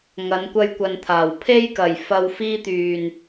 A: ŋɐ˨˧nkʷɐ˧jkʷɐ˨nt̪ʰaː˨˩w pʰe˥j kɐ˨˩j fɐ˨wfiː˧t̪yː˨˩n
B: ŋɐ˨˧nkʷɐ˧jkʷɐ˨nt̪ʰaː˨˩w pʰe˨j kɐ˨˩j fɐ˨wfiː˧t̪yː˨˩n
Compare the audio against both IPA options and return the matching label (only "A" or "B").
A